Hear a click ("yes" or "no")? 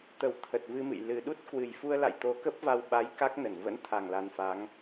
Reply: no